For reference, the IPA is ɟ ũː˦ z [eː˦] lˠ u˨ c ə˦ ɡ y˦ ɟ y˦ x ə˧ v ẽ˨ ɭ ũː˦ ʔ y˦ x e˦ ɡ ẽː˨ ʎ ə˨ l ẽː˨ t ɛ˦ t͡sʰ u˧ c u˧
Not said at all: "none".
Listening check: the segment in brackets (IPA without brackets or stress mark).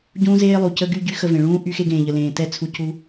eː˦